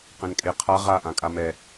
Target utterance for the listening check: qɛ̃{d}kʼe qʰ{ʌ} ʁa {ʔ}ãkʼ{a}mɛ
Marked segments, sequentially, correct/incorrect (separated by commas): incorrect, incorrect, correct, correct